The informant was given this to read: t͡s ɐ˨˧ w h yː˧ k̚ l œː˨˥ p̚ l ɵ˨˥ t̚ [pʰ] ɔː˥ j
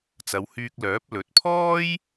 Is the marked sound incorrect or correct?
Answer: correct